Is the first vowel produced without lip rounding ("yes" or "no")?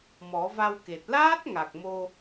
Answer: no